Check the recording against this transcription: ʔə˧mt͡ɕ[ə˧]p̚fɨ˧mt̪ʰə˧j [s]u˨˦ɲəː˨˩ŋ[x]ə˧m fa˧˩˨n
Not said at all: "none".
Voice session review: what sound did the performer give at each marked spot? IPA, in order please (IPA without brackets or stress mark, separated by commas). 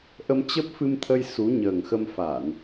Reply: ə˦˥, s, x